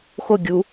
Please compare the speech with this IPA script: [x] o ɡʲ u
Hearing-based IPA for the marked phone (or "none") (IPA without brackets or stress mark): x